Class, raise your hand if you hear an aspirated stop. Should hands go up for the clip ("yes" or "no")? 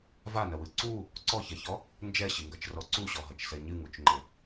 no